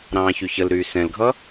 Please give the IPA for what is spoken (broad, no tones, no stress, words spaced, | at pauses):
ɾɑ̃ːçyçəlɾyː sɛ̃lɡʱʌ